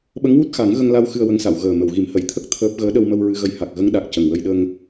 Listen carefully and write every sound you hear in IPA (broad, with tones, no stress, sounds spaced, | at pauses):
ɓ ə˧˥ ŋ w u˦˥ t̚ x a˨˩˦ ŋ ɣ ə˧ ŋ l a˧ w x ɨ˧ ə̯ w ə˧˥ ŋ s a˨˩˨ w ɣ əː˨˩ m ə˨˩˨ w ɣ i˨˩˦ m h ə˨˩˨ j t̪ʰ ə˦˥ k̚ t̪ʰ əː˦˥ p̚ ɣ əː˧˥ ɗ ə˧ w m ə˧ w ɹ ɨ˧ ɣ ə˧˥ j h a˨˩ k̚ ɣ ə˧˥ ŋ ɗ a˨˩ k̚ c ə˨˩ ŋ w ə˧ j ɗ ə˧ ŋ